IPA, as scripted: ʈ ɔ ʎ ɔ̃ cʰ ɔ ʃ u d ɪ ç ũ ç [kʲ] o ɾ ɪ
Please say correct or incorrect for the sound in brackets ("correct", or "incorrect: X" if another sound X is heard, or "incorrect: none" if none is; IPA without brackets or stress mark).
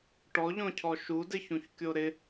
correct